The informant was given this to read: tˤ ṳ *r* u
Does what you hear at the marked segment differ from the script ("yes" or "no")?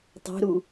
yes